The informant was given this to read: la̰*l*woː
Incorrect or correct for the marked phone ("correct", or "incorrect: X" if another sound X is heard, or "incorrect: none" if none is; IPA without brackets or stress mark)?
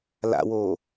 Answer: incorrect: none